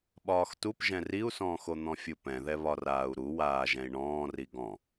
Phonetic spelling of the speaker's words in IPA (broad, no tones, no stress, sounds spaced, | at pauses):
ɓ ɒː x t u p ʒ ɛ̃ r i u̯ s ɔ̃ː x o n̪ ɔ̃ fʲ u p ɛ̃ ð ɛ β ɒ r aː u̯ ɾ u w aː ʒ ɛ̃ i̯ ɳ ɔ̃ː r i ɡ ɔ̃